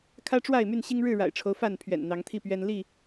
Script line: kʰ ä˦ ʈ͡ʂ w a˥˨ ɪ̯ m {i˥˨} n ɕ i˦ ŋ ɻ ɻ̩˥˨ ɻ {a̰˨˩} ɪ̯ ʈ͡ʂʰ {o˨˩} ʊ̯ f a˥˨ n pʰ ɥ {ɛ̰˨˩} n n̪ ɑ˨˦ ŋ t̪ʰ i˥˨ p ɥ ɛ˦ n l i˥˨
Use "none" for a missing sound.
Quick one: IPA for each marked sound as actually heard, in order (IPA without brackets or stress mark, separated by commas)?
y˥˨, a̰˨˩, o˦, ɛ̰˨˩